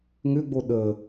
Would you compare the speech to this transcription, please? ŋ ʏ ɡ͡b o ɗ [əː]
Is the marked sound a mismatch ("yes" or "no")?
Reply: no